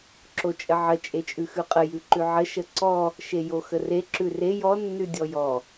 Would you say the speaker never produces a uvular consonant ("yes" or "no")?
no